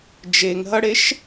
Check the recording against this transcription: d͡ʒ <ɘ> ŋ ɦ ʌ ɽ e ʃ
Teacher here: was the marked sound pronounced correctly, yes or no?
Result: no